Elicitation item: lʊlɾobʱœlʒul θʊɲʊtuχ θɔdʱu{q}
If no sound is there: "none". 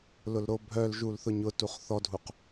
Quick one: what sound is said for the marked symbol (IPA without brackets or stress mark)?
q